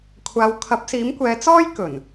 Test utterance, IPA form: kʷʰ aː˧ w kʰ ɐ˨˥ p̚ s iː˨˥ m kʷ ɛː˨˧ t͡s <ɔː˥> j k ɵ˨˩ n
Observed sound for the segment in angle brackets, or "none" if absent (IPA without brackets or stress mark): ɔː˥